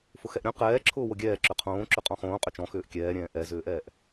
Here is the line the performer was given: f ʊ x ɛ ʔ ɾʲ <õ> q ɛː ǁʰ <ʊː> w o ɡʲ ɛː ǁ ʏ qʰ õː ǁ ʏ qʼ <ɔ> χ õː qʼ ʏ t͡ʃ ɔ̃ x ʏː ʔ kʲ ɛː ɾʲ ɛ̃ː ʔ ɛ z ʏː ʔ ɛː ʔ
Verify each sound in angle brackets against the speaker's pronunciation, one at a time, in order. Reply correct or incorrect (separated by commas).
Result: correct, correct, incorrect